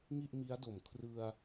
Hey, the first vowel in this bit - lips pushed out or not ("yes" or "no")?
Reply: no